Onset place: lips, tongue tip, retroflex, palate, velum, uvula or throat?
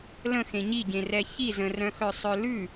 tongue tip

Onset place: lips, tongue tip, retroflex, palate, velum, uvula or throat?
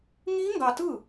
velum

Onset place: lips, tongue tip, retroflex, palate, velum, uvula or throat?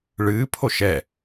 retroflex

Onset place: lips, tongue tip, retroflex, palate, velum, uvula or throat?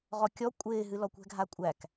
uvula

